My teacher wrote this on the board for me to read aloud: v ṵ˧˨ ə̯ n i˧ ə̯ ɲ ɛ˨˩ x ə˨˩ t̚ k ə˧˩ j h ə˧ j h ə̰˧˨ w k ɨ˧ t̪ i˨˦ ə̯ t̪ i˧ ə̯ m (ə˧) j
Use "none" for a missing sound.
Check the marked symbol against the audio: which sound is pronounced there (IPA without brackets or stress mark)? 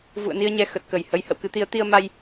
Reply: a˧